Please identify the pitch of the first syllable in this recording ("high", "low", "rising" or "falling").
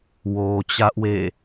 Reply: low